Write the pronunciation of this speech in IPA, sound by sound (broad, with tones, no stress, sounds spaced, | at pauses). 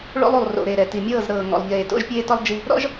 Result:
ɭ o̰˦ lˠ u˨ lˠ r o̰˨ ɾ e˨ ɾ ɛ˨ t i˨ mʲ ɤː˦˨ z ɾ ɤː˨ ŋ ɔ̰˨ lˠ ʎ eː˨ t o̰˦ ʒ pʲ eː˦ t ɔ˦ lˠ d͡ʒ i˦ | ɾ ɔ̰˦ ʒ